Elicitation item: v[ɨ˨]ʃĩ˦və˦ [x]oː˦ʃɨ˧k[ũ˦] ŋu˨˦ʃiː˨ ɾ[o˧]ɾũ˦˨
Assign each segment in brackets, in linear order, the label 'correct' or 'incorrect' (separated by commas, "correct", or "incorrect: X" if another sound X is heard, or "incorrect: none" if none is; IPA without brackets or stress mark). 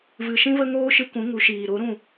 correct, incorrect: ŋ, incorrect: ũ˨˦, incorrect: o˨˦